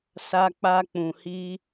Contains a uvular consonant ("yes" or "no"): no